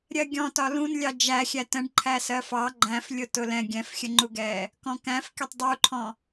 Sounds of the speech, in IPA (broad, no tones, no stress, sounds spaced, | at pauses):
ɾʲ ɜ ɡʲ ɔ̃ t ɒ l ũ n lʲ ɑ d͡ʒ æ xʲ æ t ə̃ ɖ ǃʰ æ s ɜ f ɑ ɡ͡ǃ æ̃ f lʲ ʊ t ʊ l ɛ̃ ɡʲ ɛ̃ f xʲ ə ŋ͡ǃ u ɡ ɛː | k ɔ̃ k æ̃ f kʲ ʌ tˤ dˤ u ǃʰ ɔ̃